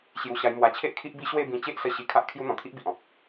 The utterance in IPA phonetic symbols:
ɕ j u˧ ɕ a˧ j m w a˧ t͡ɕʰ e˦ ʔ kʰ i˦ ʔ b i˦ ɕ w e˥˧ b ĩ˧ t͡ɕ e˦ ʔ s ə˧ ɕ i˧ kʰ a˦ ʔ kʰ j u˦ n̪ ɔ̃˨˩ t̪ʰ i˦ ʔ b i˨ ʔ ɔ̃˨ p̚

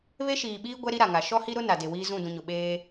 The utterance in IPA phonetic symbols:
β e˦ ʃ iː˨ ɓ iː˦ ɡʷ ɛ˦ ɾ i˦ ɾ a˨ ŋ a˨ ʃ ɔ˦ h i˦ ɾ ʊ˦ n a˨ d e˨ w iː˦ z ũ˦˨ d ũ˨ ɲ ʊ˨ ɓ eː˦

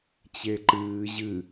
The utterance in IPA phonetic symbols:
t͡ɕ e ǃ ɨː ʑ ɨ

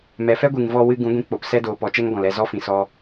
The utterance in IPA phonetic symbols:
m ɛ˨ f ɛ˦ ɡʷ ɨ˨ ŋ v ɔ˧ w ɨ˧ ɡ ũ˨˦ ɡʷ ĩ˧ k͡p o˨ p s ɛ˧ d oː˨ p ɔ˨˦ t͡ʃ ɛ˦ ŋ ɡ ɔ̃˨ l ɛ˦˨ z ɔ˦ f ĩ˨ s ɔ˧

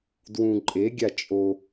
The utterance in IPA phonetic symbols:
d w ũ ǃʼ e ɡʲ a t͡ʃʼ o

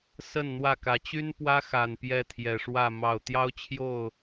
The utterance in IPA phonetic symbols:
s ə˥˨ n n̪ w ä˥˨ k ä˨˦ t͡ɕ y˦ n p w ä˦ x a˨˩ n p j ɛ˥˨ t̪ʰ j ɛ˨˩ ʂ w ä˥˨ m ɑ˥˨ ʊ̯ t̪ j ɑ˦ ʊ̯ t͡ɕʰ j o˥˨ ʊ̯

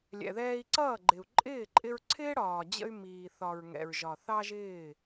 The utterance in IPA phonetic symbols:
lʲ ɛ̰˨ ð ɛː˧ i̯ ǀ ʌː˦˨ ɡ͡ǃ ɪ˨ u̯ ǃʼ ɪː˦˨ ǃʼ ɪ˧ ɹ ǀʰ ɪː˦ ɽ ɒː˨ d͡ʑ ə̰˧ y̯ m iː˨ θ ɒ˨ ɹ ŋ ɛ̰˨ ɹ ʒ ɒ˨ θ ɑ˦ ʒ ɪː˦˨

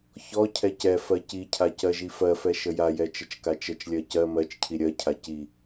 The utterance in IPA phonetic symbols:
ç ɔ cʰ ɛ c ɛ f ɜ c i cʰ a c ɜ ʒ i f ɜ f ɛ ʃ ə j a j ɛ t͡ʃ ə t͡ʃ k a t͡ʃ ə t͡ʃ lʲ ɜ c ɜ m ɜ t͡ʃ cʰ i ɾʲ ɜ cʰ a c i

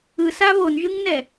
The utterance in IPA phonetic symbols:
ɯ s a β o n ʒ ɯ ŋ n ɛ

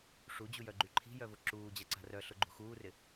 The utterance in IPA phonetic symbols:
ʂ u d͡ʑ u j œ ɡ͡ǃ y ǃʰ i̤ j œ v ʊ ǁ uː d͡ʑ a ǀ a̤ r œ ɬ ʊ ɡ͡ǃ ṳ x uː r ɪ

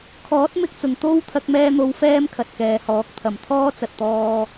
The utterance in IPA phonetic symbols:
kʰ ɔː˨˥ t̚ m ɪ˧ k̚ t͡s ʊ˨˩ ŋ t̪ o˧ w t̪ʰ ɐ˧ k̚ m ɛː˧ n̪ o˨˧ w f ɛː˥ m kʰ ɐ˨ t̚ k ɛː˨˧ h ɔː˨˥ k̚ t̪ʰ ɐ˨ m t̪ʰ ɔː˥ t͡s ɐ˨ t̚ t̪ ɔː˧

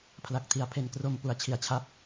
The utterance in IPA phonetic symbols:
pʰ l a˨˩ k̚ tʰ i˨˩ a̯ pʰ e˨˩ n k r o˧ m p u˩˦ a̯ t͡ɕʰ i˨˩ a̯ t͡ɕʰ a˥˩ p̚

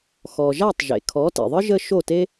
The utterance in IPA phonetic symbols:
x ɔ˩ ʒ a˥˩ tˤ ʒ ḛ˩ kʰ ɔ˩˥ t ḭ˩ ðˤ ɯ˥ ʒ ə˥ ʃ o˥˩ t e˥

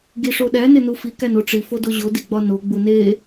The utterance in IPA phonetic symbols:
ɡ i ʂ o ɗ æ n e n u f i k æ n o ʈ͡ʂ i f o d o ʑ o d i ɡ͡b ɒ n o ɡ͡b u n e

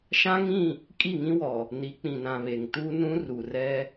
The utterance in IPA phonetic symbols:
ʃ ã˦ ŋ ĩ˦˨ | kʼ i˦˨ ŋ ĩ˦ w ɔ˨ | n i˨˦ k͡p ĩ˨ n ã˨ β e˨ ŋ t u˦ n ũ˦ r u˨ r ɛ˦

